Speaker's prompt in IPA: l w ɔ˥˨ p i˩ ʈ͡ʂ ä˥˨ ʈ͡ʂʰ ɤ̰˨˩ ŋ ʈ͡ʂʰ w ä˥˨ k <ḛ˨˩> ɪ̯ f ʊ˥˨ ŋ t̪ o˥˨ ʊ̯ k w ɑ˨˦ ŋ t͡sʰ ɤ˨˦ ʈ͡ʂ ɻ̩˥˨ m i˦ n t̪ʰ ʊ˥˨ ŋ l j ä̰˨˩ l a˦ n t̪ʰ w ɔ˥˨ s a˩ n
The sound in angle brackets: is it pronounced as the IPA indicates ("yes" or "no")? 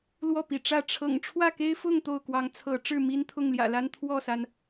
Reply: no